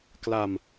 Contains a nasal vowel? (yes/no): no